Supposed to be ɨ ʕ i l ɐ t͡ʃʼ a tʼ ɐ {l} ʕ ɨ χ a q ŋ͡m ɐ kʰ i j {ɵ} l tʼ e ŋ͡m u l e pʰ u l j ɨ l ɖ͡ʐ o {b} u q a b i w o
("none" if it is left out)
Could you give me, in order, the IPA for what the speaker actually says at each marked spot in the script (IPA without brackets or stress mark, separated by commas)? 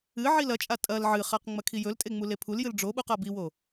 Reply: l, ɵ, ɓ